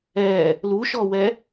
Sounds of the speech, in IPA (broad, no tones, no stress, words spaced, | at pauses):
ɛ | luʃɔwɛ